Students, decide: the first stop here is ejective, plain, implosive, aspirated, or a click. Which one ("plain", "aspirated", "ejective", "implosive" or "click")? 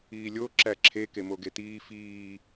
click